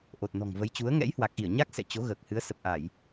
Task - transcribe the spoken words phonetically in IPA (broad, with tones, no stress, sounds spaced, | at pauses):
ʔ o˨˩ t̚ n ɔ̤˨˩ ŋ v ə˨˦ j t͡ɕ u˨˦ ə̯ ŋ ɛ̰˧˥ j h w aː˨˩ k̚ ʔ i˧˩ ə̯ ɲ a˦˥ k̚ s ɛ̰˧˨ t͡ɕ o˨˦ ɣ əː˨˩ k̚ h ɨ˨˦ ə̯ s ə˨˩ p̚ ʔ a˧˩˨ j